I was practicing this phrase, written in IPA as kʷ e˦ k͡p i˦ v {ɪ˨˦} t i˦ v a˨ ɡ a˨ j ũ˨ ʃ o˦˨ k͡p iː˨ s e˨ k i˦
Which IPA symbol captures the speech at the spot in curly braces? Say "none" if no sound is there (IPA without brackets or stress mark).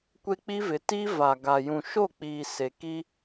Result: ɪ˨˦